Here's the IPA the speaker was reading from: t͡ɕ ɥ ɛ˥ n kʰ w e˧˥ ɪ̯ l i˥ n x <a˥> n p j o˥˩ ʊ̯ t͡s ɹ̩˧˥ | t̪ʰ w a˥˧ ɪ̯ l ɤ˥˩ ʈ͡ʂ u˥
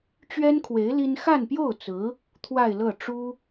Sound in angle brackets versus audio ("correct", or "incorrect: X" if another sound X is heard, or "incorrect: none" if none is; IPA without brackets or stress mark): incorrect: a˥˧